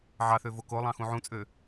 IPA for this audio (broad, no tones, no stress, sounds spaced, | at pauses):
ʕ ɑ θ ø v o k o lˠ ɑ̃ x ũ ʕ ũ t͡sʼ ø